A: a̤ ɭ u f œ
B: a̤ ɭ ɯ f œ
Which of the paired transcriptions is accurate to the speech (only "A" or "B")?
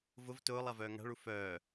A